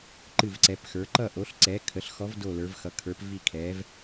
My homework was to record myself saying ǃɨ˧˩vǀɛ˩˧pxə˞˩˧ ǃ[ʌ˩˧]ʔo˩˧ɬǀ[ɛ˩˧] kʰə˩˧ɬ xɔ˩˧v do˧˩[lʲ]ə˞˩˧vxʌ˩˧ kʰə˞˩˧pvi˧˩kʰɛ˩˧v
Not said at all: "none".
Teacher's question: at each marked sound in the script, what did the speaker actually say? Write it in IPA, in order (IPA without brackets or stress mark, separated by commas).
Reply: ʌ˧˩, ɛ˩˧, l